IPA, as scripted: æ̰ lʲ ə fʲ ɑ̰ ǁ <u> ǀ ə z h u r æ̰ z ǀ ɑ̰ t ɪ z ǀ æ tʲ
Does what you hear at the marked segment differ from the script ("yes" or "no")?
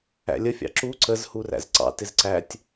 no